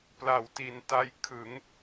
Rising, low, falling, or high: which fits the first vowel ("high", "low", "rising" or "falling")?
low